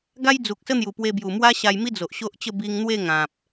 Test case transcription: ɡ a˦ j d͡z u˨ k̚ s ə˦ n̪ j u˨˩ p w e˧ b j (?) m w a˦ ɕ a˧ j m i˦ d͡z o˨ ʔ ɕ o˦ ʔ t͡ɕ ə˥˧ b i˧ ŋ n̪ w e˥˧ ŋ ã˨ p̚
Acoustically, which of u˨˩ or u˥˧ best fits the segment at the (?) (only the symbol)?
u˨˩